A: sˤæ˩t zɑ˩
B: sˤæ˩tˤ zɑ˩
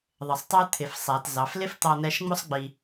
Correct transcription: A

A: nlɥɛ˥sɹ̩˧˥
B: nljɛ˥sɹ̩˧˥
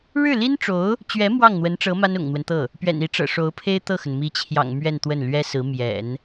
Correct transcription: A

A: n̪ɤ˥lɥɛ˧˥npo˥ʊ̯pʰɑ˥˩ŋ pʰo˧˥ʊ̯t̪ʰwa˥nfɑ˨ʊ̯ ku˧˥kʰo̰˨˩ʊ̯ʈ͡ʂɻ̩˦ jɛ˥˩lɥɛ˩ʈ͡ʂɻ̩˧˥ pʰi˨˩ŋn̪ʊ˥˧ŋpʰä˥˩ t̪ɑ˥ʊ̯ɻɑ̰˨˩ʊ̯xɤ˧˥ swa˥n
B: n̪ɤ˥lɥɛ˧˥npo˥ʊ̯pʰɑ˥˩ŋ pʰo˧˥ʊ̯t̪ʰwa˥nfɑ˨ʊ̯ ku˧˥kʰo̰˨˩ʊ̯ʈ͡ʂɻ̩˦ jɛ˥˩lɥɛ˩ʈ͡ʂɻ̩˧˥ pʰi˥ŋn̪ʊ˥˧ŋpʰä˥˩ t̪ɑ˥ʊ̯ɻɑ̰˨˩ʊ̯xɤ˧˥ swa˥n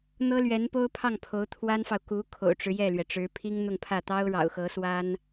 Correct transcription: B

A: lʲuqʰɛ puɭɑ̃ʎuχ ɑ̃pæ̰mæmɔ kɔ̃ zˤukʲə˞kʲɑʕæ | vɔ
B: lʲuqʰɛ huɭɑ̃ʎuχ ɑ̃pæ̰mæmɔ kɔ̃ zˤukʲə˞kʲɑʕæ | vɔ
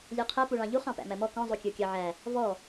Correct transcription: A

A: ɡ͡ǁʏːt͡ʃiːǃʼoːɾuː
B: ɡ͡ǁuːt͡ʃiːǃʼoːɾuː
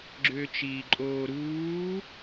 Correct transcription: A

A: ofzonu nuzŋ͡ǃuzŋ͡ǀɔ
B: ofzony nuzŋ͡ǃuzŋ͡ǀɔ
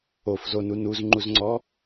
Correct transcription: A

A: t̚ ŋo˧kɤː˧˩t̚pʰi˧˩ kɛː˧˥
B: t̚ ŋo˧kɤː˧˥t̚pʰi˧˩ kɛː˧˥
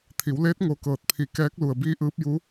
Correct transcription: A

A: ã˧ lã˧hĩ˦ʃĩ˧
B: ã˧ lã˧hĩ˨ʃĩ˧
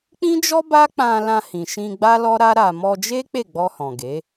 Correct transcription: B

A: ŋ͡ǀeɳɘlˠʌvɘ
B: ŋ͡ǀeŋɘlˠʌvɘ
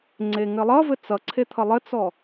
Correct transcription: B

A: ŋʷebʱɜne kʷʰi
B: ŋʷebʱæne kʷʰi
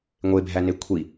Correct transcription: B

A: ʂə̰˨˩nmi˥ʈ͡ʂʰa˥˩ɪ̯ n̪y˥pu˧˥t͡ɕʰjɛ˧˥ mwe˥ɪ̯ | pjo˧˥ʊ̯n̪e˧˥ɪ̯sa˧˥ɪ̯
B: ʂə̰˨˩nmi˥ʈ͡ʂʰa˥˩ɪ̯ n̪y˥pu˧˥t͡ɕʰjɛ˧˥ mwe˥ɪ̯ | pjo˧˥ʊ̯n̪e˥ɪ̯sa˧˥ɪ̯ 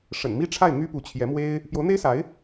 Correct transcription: B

